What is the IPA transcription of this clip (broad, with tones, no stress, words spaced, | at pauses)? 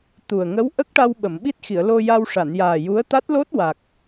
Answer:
t̪u˨˩ə̯ ŋə˧˥w ʔə˦˥k̚ʈa˧w ɓə˨˩˨mɓi˦˥t̚xi˨˩˨ə̯ lo˧ja˧w ʂa˨˩˨njaː˨˩ ju˧˥ə̯ t̪a˦˥t̚lo˦˥t̚wa˨˩k̚